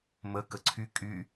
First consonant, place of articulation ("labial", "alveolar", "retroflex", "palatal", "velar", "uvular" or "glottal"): labial